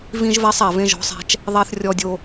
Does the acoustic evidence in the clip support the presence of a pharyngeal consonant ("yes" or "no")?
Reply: no